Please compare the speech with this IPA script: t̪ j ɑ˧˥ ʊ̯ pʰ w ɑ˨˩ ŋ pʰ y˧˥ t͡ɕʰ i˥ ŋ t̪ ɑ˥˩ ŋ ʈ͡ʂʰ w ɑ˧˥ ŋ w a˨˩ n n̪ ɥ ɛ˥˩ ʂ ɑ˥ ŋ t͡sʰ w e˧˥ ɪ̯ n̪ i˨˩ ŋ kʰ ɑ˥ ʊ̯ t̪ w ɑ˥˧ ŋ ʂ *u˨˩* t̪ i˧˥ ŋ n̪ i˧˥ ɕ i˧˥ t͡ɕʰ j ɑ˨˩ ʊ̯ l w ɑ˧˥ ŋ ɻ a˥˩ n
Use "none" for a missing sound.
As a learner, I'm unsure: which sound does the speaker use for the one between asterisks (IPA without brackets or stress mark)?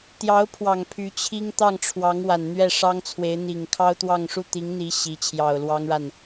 u˥˩